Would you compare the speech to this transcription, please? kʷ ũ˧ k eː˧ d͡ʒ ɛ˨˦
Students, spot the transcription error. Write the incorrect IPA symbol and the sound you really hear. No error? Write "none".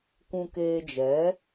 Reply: none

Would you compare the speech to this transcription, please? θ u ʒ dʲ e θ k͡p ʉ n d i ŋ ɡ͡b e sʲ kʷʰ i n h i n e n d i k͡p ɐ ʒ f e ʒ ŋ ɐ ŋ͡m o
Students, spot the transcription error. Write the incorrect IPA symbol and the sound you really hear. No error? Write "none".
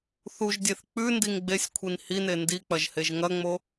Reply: f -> h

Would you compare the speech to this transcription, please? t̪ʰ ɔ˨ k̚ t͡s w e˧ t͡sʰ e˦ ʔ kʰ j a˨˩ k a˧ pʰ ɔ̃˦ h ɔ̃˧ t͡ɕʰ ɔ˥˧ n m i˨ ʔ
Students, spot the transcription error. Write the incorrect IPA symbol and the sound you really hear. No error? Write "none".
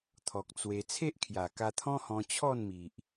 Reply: pʰ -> t̪ʰ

